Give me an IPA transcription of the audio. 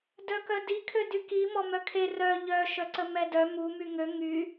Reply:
d œ k œ d i kʰ ø d y k i m ɔ m œ kʰ e r œ ʎ œ ʃ œ ǀ ə m ɛ d œ m u m y ŋ ø ŋ y

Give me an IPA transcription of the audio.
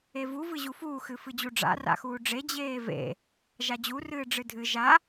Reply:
e v u v ɨ ʑ u f uː x ɨ f ɨ d͡ʑ u ɖ͡ʐ a̰ r a̰ x uː ɖ͡ʐ e d͡ʑ eː v ḛ | ʒ a d͡ʑ u r ɨː ɖ͡ʐ ɨ dʱ ɨ ʒ a

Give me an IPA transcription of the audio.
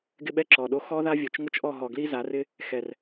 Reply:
ɡ ɪ˦ ɓ ɛ˦ ǁ ɔ˨ ɗ o˦ x ɔ˦ ð a˦ vʲ o˨ t͡ʃ ŋ ʊ˦ t͡ʃ ʔ ɔ˦˨ ɦ ɔ˨ ɡ l i˦ z a˨˦ r ɪ˦ | x ɛ˨ r

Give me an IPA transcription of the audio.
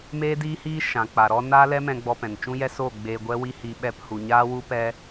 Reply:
m eː˦ d iː˦ h iː˦ ʃ ã˨ k͡p a˨ ɾ ɔ˧ n aː˦ l ɛ˦ m ɛ̃˧ ɡ͡b ɔ˧ p ɛ̃˨ n t͡ʃ ũ˦ j ɛ˦ s o˦˨ ɡ͡b eː˧ ɡʷ ɛ˦ w i˦ h i˧ ɓ ɛ˧ p h u˨ ɲ aː˦ w u˦ p ɛ˦

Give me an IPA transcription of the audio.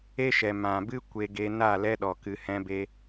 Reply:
e˦ ʃ ɛ˨ m ã˨ b ɨ˦ kʷ e˧ ɡ e˧ n a˦˨ l ɛ˦ ɗ ɔ˨ k ɨ˧ h ɛ̃˦ b e˦

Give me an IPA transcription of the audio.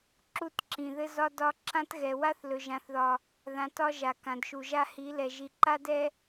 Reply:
ǁ u˦˨ t ǁ ĩ˨ ð ɘ˦ z ɒ˦ d ɒ˦ ǁ ã˦ t ɣ ɛ˨ w a˦ θ l ɵ˨ ʒ ã˨ θ ð ɒ˨ | ð ã˨ t ɒ˦ ʒ a˨ k ã˨ d ʃ u˨ ʒ a˦ h i˨˦ l ɛ˨ ʒ i˨ ǃ a˦ d ɛ˦

